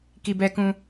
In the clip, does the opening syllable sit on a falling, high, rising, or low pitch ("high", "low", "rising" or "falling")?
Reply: low